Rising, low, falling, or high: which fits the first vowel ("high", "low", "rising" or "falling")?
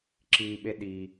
high